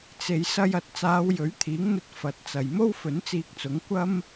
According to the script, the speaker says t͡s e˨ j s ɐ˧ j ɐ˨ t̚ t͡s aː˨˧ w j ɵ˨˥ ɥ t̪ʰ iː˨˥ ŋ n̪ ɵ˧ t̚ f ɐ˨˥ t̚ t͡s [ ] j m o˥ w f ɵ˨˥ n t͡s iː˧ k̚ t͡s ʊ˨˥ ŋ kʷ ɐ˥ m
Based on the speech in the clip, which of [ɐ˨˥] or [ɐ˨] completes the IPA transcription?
ɐ˨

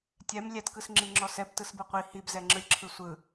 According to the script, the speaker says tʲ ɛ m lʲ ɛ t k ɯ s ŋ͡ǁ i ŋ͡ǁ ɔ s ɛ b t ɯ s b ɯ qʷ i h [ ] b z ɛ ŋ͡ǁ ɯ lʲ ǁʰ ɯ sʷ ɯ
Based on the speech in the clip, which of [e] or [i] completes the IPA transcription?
i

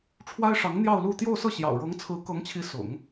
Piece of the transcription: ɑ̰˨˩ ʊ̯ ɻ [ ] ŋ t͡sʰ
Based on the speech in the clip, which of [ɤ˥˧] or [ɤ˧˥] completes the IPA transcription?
ɤ˧˥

